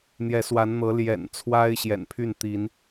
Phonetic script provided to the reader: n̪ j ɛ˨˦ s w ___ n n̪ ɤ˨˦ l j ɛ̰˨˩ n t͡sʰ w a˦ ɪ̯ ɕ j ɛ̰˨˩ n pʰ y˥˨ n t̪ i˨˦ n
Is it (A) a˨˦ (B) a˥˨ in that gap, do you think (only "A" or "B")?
A